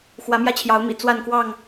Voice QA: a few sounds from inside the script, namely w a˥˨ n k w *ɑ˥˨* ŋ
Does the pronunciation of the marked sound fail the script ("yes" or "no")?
no